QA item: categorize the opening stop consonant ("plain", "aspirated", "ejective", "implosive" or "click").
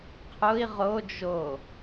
aspirated